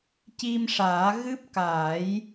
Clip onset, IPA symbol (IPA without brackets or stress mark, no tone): c